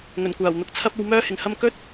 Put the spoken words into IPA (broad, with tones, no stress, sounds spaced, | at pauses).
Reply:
ŋ ɵ˨˩ n kʷ aː˨˩ w n̪ ʊ˨˥ k̚ t͡sʰ ɐ˧ p̚ o˨ w m œː˧ h ɪ˨˩ ŋ h ɐ˧ m k ɵ˥ t̚